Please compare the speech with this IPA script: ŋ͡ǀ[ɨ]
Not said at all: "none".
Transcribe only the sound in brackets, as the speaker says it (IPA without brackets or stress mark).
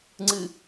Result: ɨ